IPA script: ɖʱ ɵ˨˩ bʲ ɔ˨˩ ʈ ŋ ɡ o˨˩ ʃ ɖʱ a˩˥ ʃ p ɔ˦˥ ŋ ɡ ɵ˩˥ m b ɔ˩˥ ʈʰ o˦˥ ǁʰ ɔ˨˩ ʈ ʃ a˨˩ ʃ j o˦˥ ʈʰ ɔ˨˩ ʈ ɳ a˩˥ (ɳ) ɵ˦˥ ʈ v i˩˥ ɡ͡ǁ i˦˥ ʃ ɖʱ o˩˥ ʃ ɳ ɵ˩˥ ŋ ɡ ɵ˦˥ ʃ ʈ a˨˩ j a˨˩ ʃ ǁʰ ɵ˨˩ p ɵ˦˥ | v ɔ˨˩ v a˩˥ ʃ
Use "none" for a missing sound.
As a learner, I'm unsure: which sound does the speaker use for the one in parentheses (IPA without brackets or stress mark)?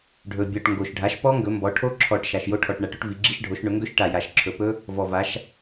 ʈ